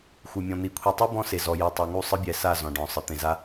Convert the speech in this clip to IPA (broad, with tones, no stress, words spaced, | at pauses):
xʷɯ˨mʲɔ̃˨n̪i˨kʷʰi˨ tˤu˦ bɔ̃˦ se˨zɔ˨ jɯ˨tˤa˨ ŋu˦˨sˤɯ˦bʲɛ˨sa˦˨ zɔ̃˨ɖɔ̃˨sˤɯ˨ t̪ẽ˨za˦